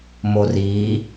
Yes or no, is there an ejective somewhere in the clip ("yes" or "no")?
no